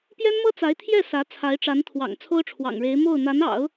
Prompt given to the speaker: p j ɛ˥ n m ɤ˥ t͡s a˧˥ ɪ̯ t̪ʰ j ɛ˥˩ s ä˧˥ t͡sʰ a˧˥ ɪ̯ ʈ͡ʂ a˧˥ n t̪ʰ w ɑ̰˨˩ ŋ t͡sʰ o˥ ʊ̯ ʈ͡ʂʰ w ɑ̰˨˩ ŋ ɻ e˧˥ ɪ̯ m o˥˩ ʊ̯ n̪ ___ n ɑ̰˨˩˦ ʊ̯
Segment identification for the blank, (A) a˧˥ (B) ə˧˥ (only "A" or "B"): A